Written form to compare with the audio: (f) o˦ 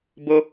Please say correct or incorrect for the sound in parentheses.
incorrect